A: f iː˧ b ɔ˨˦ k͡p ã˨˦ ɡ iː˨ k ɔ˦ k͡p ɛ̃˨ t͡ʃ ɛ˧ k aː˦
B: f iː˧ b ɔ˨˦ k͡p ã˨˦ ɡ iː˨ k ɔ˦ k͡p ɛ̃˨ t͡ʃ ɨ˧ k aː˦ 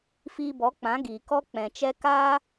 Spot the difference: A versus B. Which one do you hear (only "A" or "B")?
A